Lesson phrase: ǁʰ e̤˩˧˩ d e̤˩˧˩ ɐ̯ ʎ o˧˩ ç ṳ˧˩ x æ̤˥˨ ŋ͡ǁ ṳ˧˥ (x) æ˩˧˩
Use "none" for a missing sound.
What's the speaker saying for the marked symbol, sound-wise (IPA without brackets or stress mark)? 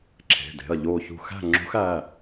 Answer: x